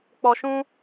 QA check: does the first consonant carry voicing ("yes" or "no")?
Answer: no